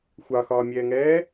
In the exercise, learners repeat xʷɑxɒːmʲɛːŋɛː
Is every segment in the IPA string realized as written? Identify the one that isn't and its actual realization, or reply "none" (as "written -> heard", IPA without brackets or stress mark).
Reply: none